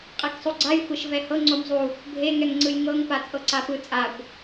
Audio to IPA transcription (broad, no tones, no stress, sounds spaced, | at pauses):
qʼ e k sˤ o ɡ͡ǀ a j xʷ e ʃ v ɛ h ɤ ŋ͡ǀ o m zˤ u | bʱ e ŋ ɛ ŋ ŋ͡ǀ ɯ j ŋ ɤ ŋ p a t͡sʼ ɤ ǀ a p ɯ t͡sʼ a kʷ